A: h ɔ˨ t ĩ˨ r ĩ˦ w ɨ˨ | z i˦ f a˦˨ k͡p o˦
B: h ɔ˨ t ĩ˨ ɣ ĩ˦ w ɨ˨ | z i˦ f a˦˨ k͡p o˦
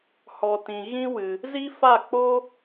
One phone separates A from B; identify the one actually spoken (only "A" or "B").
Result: B